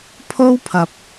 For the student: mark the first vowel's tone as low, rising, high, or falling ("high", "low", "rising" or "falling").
high